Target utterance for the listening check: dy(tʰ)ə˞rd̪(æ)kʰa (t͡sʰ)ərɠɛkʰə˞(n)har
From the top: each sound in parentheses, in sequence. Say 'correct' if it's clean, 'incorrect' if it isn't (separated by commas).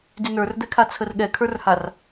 incorrect, incorrect, correct, incorrect